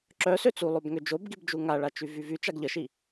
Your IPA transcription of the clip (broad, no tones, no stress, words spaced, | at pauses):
ǁœsø t͡sulˠob ŋød͡ʒobɡibd͡ʒu ŋaɭat͡ʃy vyvy t͡ʃaɡʎəʃi